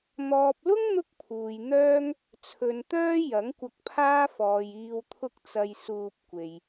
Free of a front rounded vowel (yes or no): no